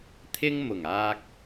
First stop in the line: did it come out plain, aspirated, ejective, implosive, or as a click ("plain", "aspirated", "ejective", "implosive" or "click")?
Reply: aspirated